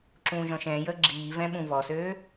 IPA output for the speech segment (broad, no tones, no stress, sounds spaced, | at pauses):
ǁ ũː ʒ ɔ̃ ʃ ɛ̃ː j əː ɡ͡ǁ iː v ɛ̃ ɓ ũ v ɔ s øː